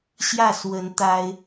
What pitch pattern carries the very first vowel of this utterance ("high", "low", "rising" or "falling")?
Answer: falling